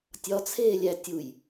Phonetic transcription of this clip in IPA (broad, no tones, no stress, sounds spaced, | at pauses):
tʲ ɒ t͡sʰ eː lʲ æ tʲ u j